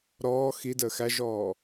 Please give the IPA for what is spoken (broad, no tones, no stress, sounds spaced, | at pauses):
ɾ ɔː x i d əː x æ ʒ ɔː